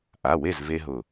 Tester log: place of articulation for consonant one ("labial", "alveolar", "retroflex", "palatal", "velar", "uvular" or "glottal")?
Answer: glottal